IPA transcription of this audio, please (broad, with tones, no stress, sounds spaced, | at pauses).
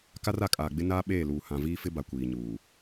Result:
k a˦ r a˨ kʼ aː˨ ɡ͡b ɪ˦ n aː˦ ɓ eː˦˨ l uː˨ h ã˨ v iː˦ f ɪ˦ b a˨ kʷ iː˨ ɲ uː˨